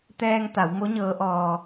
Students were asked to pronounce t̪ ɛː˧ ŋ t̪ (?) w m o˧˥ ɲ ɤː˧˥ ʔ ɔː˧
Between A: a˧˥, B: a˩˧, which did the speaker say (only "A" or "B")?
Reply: B